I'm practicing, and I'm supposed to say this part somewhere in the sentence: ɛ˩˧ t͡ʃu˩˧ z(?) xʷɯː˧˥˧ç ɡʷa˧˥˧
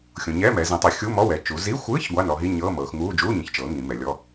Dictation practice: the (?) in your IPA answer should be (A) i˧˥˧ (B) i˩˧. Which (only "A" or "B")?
A